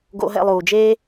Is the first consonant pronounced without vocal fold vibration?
no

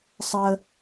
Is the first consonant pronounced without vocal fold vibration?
yes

